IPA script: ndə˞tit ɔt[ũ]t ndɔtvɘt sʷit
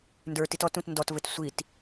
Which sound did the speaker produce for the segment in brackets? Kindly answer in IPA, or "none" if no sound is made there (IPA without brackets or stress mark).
ũ